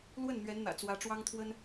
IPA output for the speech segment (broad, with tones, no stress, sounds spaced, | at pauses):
l w ə˥˩ n n̪ ɥ ɛ˧˥ n n̪ ä̰˨˩ t͡s w ä˧˥ ʈ͡ʂ w ɑ˥ ŋ t̪ʰ w ə˥ n